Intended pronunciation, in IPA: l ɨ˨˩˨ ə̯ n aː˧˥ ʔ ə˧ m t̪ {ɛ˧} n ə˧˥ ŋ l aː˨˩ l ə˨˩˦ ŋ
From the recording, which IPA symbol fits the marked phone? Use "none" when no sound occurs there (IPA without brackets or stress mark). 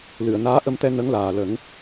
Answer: ɛ˧